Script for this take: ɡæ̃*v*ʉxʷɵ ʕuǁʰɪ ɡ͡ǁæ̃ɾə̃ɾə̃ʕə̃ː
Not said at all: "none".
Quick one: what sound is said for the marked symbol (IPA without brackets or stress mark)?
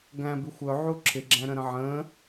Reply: b